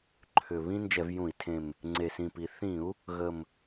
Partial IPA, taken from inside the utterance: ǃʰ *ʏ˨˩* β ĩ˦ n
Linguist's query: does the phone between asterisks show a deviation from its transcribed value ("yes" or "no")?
no